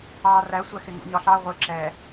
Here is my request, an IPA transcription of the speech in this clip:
ɑ r æ sʷ æ x ɪ ŋ ṵ ɲ ɒ ɬ ɑ ʁʷ ɪ ǁ ɛ

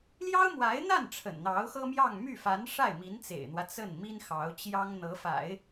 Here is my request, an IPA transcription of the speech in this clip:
l j ɑ˥ ʊ̯ m w a˧˥ ɪ̯ n̪ a˥˩ n ʈ͡ʂʰ ə̰˨˩ n n̪ ɑ˧˥ ʊ̯ x ɤ˥ m j ɑ˥˧ ŋ m y˥˩ f a˧˥ n ʂ a˥˩ ɪ̯ m i˧˥ n t͡s ḛ˨˩ ɪ̯ n̪ w ä˦ t͡s ə˥˩ n m i˥ n x ɑ˧˥ ʊ̯ t͡ɕ j ɑ˥ ŋ n̪ ɤ˧˥ f a̰˨˩˦ ɪ̯

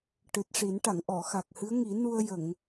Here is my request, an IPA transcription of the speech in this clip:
ʈ ɨ˨˩ t̚ ʂ i˨˩˦ n ʈ a˨˩˨ ŋ ʔ ɔ˨˩˨ x a˨˩ k̚ h ɨ˧˥ ə̯ ŋ i˨˩˦ n u˧ ə̯ j ə˨˩˨ ŋ

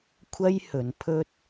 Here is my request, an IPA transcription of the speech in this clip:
kʷʰ ɐ˥ j h ɵ˨˧ n pʰ ɵ˥ t̚

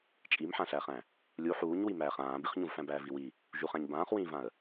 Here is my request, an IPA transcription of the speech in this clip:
t͡ʃʼ i m ħ ã ɬ æː χ æ̃ | lʲ u ħ uː ɲ w i m æː χ ãː b i χ ɲ ũ v f æ̃ b æː v i w i | ʒ u χ æ̃ ɲ b ãː χ w ĩː v ã ə̯

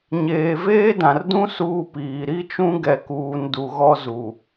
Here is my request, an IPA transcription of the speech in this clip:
ɲ eː˨ v eː˦ d ã˨ r d ũ˦ s uː˦ p iː˨ ɾ i˦ t͡ʃ ũ˦ ɡ ɛ˨ k uː˨ n d u˨ ɣ ɔ˦ z u˨

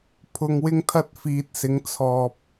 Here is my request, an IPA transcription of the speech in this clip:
pʰ ʊ˧ ŋ w ɪ˥ ŋ t̪ʰ ɐ˧ t̚ f iː˨ t̚ s ɪ˨˧ ŋ t͡sʰ ɔː˧ p̚

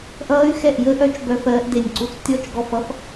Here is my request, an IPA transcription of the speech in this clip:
ʔ ʌː˦˥ y̯ x ɛ˦˨ ʔ j əː˦˥ ʔ œ˦˥ t͡ʃ b œ˦˥ f ɜː˦˥ ʔ d e˦˨ nʲ ǀ u˦˥ t͡s tʲ ɔ˦˥ t͡ʃ ɡ ɔ˦˨ f ʌ˦˥ f

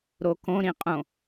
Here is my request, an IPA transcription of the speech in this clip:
ɾ o k õ ɾ ĩ qʼ õ

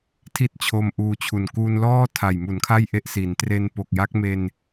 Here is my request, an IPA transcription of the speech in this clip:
tʰ i˥˩ t̚ t͡ɕʰ o˧ m ʔ uː˧ t͡ɕʰ u˨˩ n k uː˧ n l ɔː˥˩ tʰ a˨˩ j m u˩˦ n kʰ a˥˩ j ʔ e˦˥ ʔ s i˩˦ n t r e˧ n p o˨˩ k̚ j a˦˥ k̚ m e˧ n

